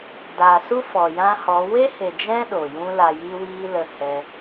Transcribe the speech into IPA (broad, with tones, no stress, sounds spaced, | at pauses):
d aː˨ s u˦ f ɔ˨ j ã˦ h ɔ˨˦ w e˦ h e˨ d͡ʒ ɛ̃˦ ɗ o˨ j ũ˦ l a˧ j iː˦ w iː˦ l ə˦ h ɛ˦